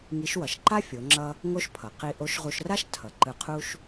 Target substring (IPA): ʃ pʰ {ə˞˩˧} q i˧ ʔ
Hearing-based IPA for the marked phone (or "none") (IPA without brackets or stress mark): ʌ˩˧